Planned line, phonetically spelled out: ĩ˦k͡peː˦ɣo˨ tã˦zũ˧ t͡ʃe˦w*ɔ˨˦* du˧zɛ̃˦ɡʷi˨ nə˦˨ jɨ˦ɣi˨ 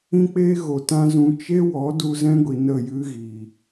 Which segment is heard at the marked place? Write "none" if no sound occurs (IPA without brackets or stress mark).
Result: ɔ˨˦